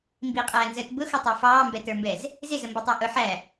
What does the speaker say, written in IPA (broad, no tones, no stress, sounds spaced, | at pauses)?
m b i qʼ æː n z əː t b ʊ x ʌ tˤ ɑ f ɑː m b ɛ t ə˞ m b ɛ z | z ɪ z ə m b ʌ tˤ æ ʔ ʊ ħ æ